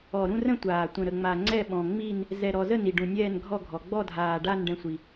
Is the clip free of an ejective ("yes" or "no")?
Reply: yes